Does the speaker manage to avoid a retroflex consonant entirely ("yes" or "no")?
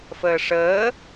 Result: no